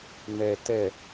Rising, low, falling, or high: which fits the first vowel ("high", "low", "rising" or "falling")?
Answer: low